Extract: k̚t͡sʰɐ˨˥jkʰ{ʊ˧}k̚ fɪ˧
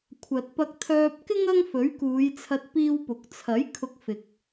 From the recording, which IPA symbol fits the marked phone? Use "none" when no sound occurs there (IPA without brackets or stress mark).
ʊ˧